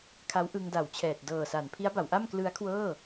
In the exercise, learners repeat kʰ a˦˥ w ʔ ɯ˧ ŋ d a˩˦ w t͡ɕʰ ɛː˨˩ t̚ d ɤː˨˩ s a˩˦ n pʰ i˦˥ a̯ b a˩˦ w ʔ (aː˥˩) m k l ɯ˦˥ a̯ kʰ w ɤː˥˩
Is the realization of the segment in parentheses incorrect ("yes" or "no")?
yes